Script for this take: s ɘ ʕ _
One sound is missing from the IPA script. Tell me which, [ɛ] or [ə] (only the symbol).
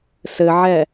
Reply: ɛ